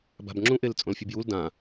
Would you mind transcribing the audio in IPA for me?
b a̤ b ŋ͡ǁ ũ ʔ e l t͡sʼ õ l fʲ u b j u l d ã

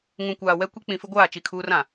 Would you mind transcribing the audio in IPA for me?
ŋ ũ˨ kʷ aː˨ w ɛ˦ kʷ i˦ k͡p ĩ˨ f ɪ˦ ɡʷ aː˦˨ t͡ʃ i˦˨ kʰ uː˦ r ã˨

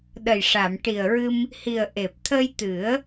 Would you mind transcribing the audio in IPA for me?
ɗ ə˨˩ j ʂ a˨˩˨ m ʈ i˨˩ ə̯ ɹ ɨ˧ m | h i˨˩ ə̯ ʔ e˨˩ p̚ t̪ʰ ə˧ j t̪ ɨ˨˩˦ ə̯

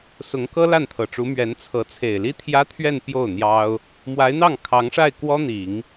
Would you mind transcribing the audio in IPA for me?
s ʊ˧˥ ŋ k ɤ˥ l a˥˩ n t̪ʰ ɤ˨˩ ʈ͡ʂ u˧˥ m ɥ ɛ˧˥ n t͡sʰ ɤ˧˥ t͡sʰ e˨˩ ɪ̯ l i˥ t̪ʰ j ä˥ t̪ʰ ɥ ɛ˥˧ n p j o˥˩ ʊ̯ n̪ j ɑ˥ ʊ̯ | m w a˧˥ ɪ̯ n̪ ɑ˥˩ ŋ kʰ ɑ˧˥ ŋ ʂ a˥˩ ɪ̯ k w ɔ˥ n̪ i˨˩˦ ŋ

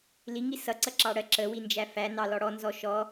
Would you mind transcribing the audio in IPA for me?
l i ŋ i s ʌ ǀ ʌ ǁ ɑ ɽ ɜ ǁ ə w i n d͡ʒ æ f æ n ɑ l ɔ ɽ ɔ n z ɔ ʃ ɔ

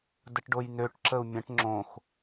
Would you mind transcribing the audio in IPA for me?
d ə ʈ ɖ o j n ø ʈ ǁ ə u̯ mʲ ə̃ ʈ ŋ͡ǁ õ x

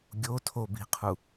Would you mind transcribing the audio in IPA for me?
ɡʲ o tʰ o b i̤ qʰ u

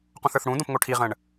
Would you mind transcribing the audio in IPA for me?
q ũ θ ə˞ θ ɽ ũ d õ p ŋ o ʈʰ i ʁ ə̃ ɳ

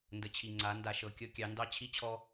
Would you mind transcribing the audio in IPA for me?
n d ə˨ t͡ɕʰ i˨ ŋ͡ǀ a˨˦ n d a˨ ʃ ɤ˨ kʲ ɤ˦ kʲ ɑ˨˦ n d ɑ˦ t͡ɕʰ i˦ t͡ɕʰ ɔ˦

